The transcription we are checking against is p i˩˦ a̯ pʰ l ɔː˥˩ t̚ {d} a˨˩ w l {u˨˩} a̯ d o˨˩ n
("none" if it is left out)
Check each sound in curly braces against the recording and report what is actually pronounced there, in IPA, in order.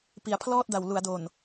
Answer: d, u˩˦

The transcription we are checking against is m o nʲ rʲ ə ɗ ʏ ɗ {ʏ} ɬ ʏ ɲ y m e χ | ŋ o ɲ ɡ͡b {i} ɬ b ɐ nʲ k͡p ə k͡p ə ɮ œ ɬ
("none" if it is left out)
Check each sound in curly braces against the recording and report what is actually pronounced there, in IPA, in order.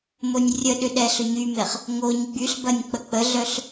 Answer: ɛ, y

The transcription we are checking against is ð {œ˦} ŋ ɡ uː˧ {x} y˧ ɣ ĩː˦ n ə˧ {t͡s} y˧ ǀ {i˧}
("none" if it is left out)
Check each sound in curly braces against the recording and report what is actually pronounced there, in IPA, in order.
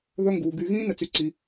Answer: œ˦, ɡ, t͡s, i˧

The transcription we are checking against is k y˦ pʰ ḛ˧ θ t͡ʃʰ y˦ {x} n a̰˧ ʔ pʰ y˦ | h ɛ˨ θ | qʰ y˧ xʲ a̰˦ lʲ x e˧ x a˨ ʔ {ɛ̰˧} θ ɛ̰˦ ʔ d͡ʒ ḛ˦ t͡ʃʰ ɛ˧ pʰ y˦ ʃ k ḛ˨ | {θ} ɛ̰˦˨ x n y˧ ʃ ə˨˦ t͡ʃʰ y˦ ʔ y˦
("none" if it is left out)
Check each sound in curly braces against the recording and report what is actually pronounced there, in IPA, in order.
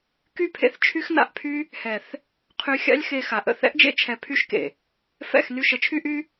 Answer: x, ə̰˧, f

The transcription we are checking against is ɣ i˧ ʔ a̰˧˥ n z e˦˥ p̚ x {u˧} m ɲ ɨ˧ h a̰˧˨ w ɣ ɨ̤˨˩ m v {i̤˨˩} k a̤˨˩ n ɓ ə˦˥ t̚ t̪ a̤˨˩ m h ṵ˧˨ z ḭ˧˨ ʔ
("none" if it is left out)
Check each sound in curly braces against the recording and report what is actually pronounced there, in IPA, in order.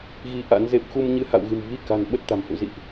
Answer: u˧, i˧

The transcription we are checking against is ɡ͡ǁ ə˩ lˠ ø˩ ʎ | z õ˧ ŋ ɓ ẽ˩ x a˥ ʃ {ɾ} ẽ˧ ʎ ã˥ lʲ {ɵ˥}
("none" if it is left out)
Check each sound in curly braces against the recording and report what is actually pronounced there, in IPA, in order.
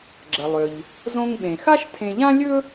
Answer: tʰ, ɵ˥

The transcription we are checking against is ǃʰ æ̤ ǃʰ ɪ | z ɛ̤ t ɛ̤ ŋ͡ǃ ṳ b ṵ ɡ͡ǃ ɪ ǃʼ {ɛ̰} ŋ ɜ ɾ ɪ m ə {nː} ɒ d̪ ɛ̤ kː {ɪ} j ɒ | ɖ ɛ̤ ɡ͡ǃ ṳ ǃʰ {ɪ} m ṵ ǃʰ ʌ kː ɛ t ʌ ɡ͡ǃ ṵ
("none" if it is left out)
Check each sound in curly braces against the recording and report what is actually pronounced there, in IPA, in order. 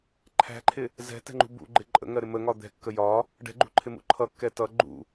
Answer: ə̰, ŋ, ə, ɪ

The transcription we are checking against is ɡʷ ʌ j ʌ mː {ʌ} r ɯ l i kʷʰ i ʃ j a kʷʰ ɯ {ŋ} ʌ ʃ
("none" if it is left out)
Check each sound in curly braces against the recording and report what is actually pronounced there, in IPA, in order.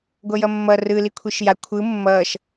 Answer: ʌ, mː

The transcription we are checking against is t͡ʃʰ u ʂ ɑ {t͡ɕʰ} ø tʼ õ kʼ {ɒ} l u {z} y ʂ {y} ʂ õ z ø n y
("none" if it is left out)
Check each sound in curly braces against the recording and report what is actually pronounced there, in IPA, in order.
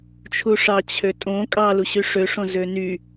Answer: t͡ɕʰ, ɑ, ɕ, ø

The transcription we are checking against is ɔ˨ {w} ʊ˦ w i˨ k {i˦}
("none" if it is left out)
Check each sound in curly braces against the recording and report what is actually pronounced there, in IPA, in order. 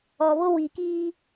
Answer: β, iː˦

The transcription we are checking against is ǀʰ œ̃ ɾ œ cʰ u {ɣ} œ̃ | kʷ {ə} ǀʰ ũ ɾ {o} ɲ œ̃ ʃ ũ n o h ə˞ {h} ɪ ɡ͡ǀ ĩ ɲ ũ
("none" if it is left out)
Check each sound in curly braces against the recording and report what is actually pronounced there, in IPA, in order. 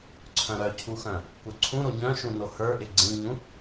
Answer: x, œ, o, ʔ

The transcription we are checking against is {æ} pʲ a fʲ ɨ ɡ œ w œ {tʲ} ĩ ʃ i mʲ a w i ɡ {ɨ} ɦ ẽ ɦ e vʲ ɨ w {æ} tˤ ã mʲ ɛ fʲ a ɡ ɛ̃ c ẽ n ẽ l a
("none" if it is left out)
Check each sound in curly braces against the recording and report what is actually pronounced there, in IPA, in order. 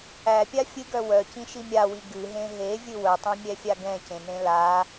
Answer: æ, c, ɨ, œ

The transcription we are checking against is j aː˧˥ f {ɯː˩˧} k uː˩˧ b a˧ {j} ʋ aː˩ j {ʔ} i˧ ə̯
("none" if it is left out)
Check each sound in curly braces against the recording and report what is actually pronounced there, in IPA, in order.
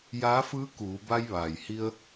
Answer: ɯː˧˥, j, h

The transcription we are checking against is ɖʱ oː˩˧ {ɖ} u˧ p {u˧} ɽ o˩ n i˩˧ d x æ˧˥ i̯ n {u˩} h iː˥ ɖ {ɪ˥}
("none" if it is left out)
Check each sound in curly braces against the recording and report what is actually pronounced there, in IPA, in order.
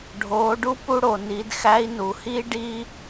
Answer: ɖ, u˧, u˩, i˥

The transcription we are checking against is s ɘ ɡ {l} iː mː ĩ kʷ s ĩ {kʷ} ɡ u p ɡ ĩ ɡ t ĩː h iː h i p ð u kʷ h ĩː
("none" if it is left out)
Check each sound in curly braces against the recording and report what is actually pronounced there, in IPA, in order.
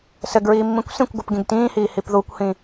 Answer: ɹ, kʷ

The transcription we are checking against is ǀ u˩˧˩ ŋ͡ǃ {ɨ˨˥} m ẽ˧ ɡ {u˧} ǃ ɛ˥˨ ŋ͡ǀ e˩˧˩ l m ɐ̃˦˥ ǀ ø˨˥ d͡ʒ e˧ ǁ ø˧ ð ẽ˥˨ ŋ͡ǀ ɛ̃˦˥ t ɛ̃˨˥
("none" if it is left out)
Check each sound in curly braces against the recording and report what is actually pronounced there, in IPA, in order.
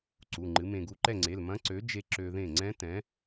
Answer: ɨ˨˥, u˧

